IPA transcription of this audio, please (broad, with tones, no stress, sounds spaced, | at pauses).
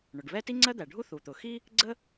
ɳ ʊ˩ ɖ β ɛ˥ t i˥ ŋ͡ǀ ɜ˥ d̪ æ˩ ɖʱ u˥ θ u˩ t̪ ʊ˩ x i˥ | ɡ͡ǀ ə˥